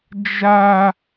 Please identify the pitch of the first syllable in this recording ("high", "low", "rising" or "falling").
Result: high